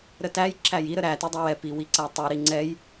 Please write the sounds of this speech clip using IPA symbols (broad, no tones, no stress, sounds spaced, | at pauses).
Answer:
ɾ ə t æ j ǁ æ j i ɾ ə ɾ æ t i dˤ ɛ w ɛ p i w i ǀ æ tˤ i ɾ i ŋ͡ǀ ɛ j